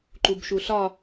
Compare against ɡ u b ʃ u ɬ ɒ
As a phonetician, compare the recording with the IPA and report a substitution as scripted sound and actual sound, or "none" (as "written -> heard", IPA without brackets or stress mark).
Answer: ɡ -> ǃ